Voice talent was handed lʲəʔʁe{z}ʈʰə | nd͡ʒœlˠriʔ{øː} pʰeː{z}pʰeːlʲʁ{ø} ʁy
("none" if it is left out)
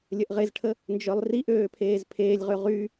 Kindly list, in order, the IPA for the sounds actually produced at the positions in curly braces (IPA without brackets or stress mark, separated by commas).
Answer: z, øː, z, ø